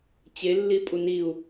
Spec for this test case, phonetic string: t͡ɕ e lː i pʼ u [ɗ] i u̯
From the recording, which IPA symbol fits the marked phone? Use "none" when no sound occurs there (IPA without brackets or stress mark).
n